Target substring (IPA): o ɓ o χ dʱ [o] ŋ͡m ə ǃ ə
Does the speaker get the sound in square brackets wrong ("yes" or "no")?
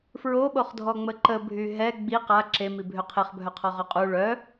yes